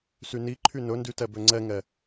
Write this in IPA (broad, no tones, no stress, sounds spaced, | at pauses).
s y n i ǃʰ y n ɵ n d y t ɛ b ø ŋ͡ǀ ɛ ŋ ɛ